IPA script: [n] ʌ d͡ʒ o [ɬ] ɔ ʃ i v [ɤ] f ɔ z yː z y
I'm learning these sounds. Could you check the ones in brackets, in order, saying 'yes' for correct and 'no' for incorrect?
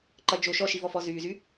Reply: no, no, no

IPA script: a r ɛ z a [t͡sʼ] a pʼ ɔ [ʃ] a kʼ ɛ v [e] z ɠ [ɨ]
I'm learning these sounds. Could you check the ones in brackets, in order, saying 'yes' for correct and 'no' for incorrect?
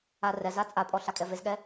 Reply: yes, no, yes, no

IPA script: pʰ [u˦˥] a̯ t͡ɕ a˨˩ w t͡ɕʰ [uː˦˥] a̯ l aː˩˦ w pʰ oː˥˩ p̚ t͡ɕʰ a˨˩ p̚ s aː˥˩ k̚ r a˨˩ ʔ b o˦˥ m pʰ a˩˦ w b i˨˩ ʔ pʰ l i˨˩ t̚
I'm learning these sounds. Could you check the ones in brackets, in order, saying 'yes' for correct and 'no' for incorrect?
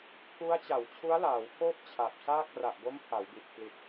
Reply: yes, no

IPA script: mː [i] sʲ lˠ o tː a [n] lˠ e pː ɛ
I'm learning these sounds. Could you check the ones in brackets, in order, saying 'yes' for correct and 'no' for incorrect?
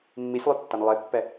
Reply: yes, yes

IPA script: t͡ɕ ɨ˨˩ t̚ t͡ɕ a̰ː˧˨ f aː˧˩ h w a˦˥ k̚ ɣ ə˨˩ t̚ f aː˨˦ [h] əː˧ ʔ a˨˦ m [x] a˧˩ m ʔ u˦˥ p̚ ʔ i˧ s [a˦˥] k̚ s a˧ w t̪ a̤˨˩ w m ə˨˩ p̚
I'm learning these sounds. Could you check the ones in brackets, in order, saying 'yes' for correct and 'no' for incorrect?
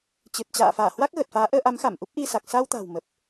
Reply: no, yes, no

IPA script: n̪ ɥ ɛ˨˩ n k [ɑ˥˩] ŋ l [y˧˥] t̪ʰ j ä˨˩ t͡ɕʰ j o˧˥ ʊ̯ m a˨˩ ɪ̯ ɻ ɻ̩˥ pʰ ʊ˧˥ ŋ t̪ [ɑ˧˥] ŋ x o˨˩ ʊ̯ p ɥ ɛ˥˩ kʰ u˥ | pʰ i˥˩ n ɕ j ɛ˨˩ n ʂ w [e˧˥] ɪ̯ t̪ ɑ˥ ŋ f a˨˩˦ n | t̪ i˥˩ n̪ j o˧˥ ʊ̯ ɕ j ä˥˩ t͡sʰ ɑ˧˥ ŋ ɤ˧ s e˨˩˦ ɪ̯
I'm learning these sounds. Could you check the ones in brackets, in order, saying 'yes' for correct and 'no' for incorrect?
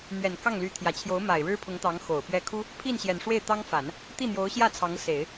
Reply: yes, yes, yes, no

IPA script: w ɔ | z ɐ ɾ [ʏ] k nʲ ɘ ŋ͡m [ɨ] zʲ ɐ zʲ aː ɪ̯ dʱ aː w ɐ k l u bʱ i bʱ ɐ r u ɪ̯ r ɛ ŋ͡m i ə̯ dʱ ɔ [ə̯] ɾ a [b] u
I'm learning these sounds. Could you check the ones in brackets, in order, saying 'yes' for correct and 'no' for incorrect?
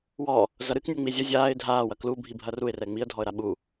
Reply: no, no, yes, no

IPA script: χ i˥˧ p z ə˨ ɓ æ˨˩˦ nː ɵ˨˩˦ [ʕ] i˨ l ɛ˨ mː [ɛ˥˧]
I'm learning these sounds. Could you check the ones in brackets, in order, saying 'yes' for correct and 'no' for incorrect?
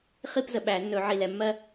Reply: yes, no

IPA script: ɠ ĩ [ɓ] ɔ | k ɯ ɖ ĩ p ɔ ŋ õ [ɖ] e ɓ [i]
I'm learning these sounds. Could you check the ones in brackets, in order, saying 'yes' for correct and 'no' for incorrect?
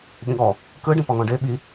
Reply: no, yes, yes

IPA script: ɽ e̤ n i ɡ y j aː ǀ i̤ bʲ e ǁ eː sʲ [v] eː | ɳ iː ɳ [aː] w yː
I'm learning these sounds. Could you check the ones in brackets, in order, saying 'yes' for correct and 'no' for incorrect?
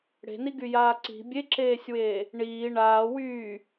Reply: no, yes

